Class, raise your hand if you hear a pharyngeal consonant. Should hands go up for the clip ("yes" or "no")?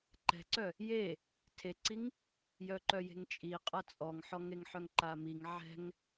yes